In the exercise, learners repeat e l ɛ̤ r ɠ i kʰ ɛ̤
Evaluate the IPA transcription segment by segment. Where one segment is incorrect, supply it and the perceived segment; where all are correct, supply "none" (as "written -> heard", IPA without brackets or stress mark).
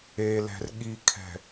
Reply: none